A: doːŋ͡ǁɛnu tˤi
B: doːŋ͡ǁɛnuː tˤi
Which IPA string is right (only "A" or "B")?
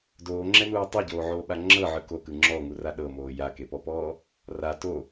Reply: B